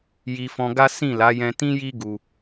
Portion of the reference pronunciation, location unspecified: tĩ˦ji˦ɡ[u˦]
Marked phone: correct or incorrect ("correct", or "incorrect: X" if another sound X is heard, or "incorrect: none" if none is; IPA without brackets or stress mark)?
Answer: incorrect: u˧